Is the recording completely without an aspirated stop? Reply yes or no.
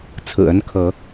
no